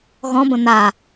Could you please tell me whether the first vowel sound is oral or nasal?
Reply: nasal